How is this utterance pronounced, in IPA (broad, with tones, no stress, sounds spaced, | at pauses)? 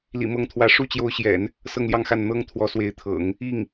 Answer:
l ḭ˨˩ m ɤ˧˥ ŋ t̪ʰ w ä˧˥ ʂ u˥˩ t͡ɕ j o˧˥ ʊ̯ ɕ j ɛ̰˨˩˦ n | s ɤ˥˧ ŋ l j ɑ˥˧ ŋ x a˥˩ n n̪ ɤ˥ ŋ t̪ʰ w ɔ˧˥ s w e˧˥ ɪ̯ t̪ʰ ɤ̰˨˩˦ ŋ | i˥˩ ŋ